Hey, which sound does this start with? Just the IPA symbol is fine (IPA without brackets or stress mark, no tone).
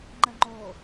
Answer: ŋ͡ǃ